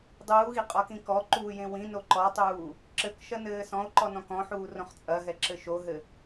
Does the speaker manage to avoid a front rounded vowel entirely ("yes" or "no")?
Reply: yes